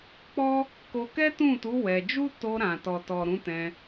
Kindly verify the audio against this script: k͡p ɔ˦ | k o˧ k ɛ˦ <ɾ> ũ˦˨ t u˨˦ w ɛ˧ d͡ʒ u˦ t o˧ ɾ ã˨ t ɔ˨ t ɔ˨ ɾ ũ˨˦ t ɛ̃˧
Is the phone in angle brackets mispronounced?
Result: yes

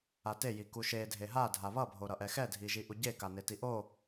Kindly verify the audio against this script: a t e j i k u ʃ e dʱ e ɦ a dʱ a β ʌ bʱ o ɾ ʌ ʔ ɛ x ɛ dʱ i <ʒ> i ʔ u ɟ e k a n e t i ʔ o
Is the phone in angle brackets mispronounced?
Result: no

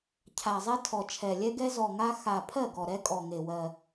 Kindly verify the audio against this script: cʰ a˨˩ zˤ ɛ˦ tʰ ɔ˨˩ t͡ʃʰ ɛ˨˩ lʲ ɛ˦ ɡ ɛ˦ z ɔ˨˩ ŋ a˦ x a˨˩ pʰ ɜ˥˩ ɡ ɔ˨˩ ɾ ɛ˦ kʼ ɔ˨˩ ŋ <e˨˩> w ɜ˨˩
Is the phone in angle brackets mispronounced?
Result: no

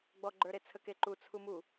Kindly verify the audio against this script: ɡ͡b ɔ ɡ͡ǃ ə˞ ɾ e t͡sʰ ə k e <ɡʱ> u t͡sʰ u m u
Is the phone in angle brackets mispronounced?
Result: yes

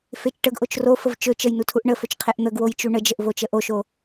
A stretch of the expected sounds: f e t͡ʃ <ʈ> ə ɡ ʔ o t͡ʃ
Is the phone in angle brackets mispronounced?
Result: no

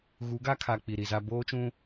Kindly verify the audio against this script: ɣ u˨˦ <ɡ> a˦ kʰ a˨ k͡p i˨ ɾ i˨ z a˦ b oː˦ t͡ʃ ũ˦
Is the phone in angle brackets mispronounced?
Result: no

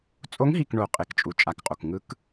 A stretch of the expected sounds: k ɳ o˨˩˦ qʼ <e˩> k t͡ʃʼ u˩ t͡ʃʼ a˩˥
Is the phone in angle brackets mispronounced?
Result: no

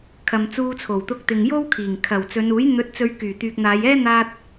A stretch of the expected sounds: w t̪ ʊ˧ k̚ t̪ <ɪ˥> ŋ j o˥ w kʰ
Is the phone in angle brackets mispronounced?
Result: yes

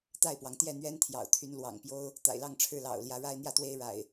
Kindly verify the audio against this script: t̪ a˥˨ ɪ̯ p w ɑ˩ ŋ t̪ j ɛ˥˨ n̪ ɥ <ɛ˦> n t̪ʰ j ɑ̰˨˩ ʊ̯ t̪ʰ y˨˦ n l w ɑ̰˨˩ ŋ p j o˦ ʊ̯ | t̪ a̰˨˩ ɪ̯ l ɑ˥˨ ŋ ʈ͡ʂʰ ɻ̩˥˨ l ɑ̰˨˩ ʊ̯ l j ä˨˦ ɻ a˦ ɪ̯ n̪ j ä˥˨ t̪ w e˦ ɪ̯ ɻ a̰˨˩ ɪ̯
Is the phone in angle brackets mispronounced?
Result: no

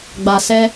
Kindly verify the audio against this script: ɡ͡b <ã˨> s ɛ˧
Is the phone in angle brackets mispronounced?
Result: yes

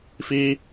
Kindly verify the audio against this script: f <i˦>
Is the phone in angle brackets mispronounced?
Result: no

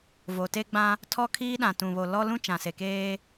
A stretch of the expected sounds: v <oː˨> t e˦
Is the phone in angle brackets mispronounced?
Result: yes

